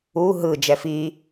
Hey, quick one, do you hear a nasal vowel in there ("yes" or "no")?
no